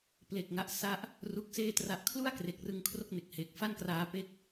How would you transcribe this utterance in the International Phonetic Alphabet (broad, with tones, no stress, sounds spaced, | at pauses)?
p l e˨˩ k̚ ŋ a˦˥ ʔ s a˥˩ ʔ | r u˦˥ k̚ s eː˥˩ t r a˨˩ ʔ kʰ l u˥˩ a̯ k r e˨˩ k̚ r ɯ˧ ŋ kʰ r o˥˩ k̚ n e˨˩ k̚ h eː˨˩ k̚ f a˥˩ n k r aː˧ p e˦˥ k̚